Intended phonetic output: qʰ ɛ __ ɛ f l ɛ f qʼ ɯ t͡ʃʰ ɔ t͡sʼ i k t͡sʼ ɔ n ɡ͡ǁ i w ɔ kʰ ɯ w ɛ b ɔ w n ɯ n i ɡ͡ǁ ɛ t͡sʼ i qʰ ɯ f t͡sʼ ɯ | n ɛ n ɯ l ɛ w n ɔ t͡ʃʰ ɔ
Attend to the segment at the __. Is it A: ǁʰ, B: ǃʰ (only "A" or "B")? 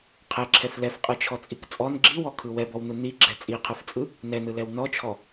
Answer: A